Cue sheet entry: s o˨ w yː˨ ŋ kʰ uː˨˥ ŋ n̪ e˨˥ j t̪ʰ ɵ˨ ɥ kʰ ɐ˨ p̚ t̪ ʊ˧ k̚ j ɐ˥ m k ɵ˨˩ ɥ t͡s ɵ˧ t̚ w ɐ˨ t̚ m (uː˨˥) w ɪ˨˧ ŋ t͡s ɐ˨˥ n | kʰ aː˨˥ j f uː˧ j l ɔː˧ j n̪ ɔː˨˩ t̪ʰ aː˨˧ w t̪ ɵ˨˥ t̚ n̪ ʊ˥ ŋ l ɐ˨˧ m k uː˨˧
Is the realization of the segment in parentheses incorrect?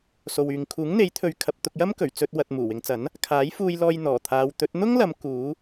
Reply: yes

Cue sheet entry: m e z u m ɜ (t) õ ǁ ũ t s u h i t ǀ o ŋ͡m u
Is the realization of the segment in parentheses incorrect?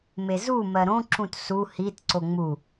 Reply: yes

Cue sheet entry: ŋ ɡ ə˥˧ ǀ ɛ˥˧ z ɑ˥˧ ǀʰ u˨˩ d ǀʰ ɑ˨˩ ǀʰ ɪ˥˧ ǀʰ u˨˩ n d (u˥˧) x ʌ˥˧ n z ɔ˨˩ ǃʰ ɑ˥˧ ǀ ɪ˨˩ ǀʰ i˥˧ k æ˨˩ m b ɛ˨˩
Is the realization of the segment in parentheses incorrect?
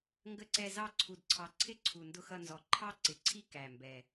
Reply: yes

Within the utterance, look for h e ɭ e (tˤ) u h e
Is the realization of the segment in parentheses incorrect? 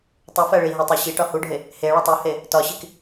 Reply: no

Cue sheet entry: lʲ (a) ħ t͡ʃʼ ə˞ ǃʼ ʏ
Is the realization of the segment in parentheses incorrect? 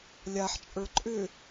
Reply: no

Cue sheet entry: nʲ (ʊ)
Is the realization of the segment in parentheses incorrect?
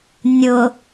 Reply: no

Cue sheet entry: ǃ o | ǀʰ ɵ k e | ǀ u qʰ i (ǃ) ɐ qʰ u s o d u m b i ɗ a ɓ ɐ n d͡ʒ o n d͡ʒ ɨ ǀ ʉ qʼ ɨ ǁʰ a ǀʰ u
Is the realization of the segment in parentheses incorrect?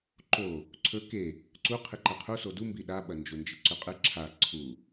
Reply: no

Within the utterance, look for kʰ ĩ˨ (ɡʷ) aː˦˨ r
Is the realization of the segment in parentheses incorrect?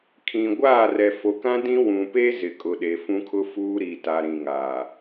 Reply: no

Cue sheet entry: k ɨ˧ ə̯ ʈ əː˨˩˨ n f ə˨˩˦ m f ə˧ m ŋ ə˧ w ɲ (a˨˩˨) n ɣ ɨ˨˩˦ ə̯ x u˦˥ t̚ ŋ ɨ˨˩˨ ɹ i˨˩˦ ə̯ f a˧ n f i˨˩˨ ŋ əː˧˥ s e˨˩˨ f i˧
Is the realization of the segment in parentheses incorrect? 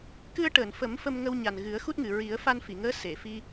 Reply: yes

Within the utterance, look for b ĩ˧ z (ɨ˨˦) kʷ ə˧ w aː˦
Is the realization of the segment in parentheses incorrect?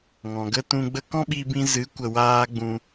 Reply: no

